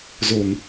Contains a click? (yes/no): no